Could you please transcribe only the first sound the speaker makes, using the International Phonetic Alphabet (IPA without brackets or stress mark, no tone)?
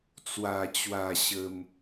t͡s